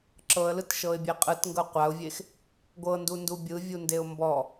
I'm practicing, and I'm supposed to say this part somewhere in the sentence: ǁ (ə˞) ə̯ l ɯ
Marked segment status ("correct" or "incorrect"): incorrect